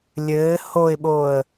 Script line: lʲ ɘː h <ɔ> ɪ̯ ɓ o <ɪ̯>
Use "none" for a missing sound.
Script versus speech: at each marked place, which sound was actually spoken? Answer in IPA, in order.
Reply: o, ə̯

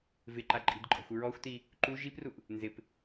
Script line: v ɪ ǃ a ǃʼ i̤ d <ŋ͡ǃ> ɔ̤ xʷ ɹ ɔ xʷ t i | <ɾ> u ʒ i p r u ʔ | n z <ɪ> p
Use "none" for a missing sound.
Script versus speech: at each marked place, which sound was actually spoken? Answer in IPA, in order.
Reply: ǃʼ, ǃ, ɪ

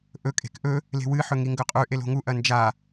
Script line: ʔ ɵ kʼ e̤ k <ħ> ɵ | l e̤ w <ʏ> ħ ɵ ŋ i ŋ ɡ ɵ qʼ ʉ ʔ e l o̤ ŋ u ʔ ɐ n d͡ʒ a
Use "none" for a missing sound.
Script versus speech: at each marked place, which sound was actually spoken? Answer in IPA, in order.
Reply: ʔ, ɨ

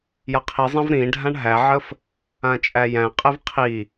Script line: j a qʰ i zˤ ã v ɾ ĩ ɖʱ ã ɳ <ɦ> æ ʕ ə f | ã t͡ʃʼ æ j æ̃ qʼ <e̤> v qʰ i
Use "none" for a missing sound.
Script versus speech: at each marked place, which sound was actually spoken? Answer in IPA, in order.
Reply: ɦ, e

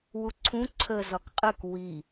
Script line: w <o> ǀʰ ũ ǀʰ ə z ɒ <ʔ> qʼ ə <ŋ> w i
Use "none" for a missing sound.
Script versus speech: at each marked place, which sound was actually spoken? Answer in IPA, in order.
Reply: u, k, k

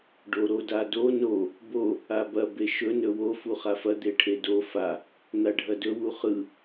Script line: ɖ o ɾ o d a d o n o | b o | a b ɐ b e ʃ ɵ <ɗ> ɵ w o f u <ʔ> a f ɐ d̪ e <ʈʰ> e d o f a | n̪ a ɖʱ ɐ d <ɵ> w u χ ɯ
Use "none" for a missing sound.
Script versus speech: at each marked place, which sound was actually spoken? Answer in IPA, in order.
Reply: n, χ, ʈʰ, ɵ

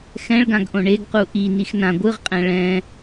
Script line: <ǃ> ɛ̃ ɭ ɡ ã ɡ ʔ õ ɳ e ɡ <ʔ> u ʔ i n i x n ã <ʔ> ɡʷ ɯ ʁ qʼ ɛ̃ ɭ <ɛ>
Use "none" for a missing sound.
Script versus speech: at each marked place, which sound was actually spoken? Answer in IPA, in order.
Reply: x, q, none, ɛ̃

